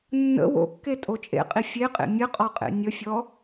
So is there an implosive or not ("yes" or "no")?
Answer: no